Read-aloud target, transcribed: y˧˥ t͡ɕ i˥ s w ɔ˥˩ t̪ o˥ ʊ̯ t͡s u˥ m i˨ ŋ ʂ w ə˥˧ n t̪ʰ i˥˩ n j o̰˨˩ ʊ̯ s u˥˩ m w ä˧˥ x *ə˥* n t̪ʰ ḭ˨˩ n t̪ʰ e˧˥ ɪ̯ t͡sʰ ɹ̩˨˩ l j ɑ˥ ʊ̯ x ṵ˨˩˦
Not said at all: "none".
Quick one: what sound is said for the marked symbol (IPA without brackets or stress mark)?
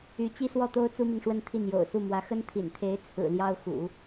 ə˥